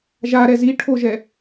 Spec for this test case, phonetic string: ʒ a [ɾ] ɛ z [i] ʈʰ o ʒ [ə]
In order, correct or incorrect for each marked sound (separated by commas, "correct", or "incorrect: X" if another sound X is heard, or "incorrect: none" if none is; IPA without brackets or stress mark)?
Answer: correct, correct, incorrect: ɛ